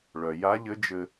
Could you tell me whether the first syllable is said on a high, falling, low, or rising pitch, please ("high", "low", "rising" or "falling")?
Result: low